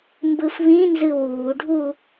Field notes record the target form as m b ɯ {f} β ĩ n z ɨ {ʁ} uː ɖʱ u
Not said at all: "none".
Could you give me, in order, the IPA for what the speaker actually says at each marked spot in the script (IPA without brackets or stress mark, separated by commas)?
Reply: f, w